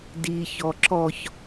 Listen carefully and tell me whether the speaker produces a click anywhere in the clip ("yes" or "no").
yes